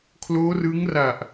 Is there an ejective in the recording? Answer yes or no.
no